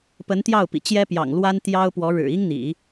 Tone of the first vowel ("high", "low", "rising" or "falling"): rising